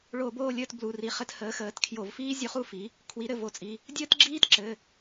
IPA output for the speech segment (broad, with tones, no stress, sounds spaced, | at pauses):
ɭ o˧˩˧ b oː˦˨ lʲ əː˦˨ t b l u˩˧˩ r i˩˧˩ χ ɘ˧˩˧ t h əː˩˥ x əː˩˧˩ t kʰ j o˧˩˧ v f iː˥ zʲ u˦˨ χ u˥ f i˩˥ | kʰ w i˩˥ ɾ ɘ˩˧˩ v o˩˥ t͡sʼ i˩˧˩ | dʲ əː˥ t ɡ͡ǁ iː˥ t ǁ ɘ˩˧˩